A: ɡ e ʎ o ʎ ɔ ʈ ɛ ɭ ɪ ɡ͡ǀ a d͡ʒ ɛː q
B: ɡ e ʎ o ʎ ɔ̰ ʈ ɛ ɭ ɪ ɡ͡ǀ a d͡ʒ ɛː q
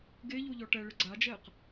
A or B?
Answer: A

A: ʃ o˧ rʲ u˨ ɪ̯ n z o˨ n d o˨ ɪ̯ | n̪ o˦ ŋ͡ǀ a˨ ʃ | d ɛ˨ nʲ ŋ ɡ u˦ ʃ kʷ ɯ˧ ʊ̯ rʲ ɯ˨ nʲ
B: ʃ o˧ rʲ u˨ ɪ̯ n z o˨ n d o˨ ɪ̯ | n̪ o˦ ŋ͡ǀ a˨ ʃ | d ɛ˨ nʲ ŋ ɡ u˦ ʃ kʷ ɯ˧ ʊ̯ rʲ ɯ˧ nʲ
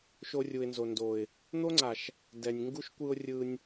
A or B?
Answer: B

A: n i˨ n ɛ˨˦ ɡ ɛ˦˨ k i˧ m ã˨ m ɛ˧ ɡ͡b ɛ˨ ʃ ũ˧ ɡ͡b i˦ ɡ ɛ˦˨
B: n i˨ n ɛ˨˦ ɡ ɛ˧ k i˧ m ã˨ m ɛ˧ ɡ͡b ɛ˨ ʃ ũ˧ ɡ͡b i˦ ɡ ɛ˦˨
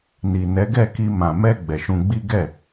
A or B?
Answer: A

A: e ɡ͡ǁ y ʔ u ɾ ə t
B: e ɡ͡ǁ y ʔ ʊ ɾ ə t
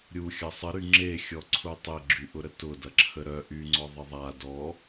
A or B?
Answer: B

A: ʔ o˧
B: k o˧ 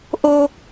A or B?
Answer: A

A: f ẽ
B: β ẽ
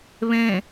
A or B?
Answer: B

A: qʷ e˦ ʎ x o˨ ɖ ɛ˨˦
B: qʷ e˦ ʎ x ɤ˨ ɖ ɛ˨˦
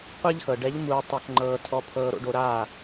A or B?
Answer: B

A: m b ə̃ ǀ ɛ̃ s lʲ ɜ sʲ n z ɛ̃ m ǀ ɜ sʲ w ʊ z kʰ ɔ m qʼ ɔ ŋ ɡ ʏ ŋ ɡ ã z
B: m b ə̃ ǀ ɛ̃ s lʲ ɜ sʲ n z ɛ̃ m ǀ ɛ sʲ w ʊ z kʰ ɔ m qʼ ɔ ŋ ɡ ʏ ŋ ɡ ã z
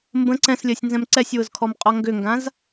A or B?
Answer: B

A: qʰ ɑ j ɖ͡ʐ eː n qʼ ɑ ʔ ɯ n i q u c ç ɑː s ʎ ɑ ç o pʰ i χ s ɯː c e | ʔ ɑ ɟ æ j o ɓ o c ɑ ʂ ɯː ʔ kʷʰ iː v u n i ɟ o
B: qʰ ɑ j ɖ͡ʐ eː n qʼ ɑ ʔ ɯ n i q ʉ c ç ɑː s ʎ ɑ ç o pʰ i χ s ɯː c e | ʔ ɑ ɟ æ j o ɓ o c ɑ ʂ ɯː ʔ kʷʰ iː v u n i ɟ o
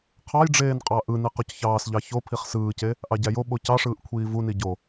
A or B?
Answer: A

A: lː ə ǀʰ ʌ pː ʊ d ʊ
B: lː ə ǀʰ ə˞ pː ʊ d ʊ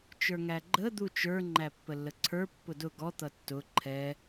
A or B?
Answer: B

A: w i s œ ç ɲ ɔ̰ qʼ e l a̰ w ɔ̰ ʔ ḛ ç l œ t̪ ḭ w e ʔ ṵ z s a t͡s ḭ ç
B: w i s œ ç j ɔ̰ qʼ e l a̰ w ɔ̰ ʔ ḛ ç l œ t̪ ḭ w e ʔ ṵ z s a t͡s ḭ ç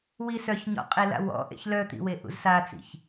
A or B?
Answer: A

